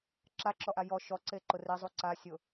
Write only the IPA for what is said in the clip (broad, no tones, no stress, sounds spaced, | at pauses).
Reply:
ǁ a ǁ ɔ ʔ a j ɔ ʃ ɔ ǀ e ǃ ʊ r e zˤ u ǀ a sʲ ʊ